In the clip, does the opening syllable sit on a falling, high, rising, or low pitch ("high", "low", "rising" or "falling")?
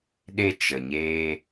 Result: high